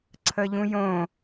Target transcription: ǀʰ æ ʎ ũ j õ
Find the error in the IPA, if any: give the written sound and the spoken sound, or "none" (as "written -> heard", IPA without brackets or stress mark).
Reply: æ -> ə